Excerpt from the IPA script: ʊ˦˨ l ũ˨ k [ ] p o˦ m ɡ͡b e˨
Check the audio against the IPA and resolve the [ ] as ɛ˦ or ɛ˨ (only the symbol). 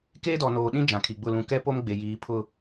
ɛ˦